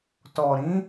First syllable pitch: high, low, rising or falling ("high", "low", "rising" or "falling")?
low